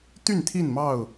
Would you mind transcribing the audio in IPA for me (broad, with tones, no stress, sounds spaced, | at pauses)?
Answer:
t̪ y˥˨ n t̪ʰ i˥˨ n m ɑ˥˨ ʊ̯